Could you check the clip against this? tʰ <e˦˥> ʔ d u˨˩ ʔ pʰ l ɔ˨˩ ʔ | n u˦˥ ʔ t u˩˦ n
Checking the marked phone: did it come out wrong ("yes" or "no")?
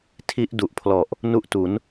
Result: yes